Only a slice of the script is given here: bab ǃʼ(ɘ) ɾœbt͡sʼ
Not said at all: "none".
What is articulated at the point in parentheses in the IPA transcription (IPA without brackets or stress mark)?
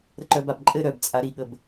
ɘ